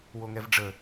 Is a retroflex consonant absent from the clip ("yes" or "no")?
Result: no